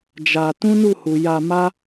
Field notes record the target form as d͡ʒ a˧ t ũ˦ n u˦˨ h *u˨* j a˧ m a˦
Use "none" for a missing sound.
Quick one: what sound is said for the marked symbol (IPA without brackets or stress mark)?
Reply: u˨